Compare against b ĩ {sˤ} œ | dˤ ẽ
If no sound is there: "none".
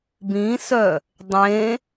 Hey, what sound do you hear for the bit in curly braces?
s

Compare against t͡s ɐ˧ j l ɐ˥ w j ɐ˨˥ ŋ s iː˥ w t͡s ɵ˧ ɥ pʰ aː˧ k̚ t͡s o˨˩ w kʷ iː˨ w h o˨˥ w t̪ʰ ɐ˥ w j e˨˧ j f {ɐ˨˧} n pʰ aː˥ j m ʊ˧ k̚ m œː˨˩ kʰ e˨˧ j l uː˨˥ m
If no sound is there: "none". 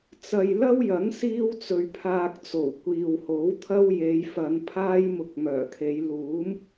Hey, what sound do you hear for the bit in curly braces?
ɐ˨˧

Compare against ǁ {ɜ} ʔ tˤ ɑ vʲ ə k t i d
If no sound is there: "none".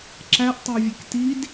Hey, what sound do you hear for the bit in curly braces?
æ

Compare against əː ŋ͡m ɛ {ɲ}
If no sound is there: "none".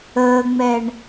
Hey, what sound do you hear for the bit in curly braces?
ɳ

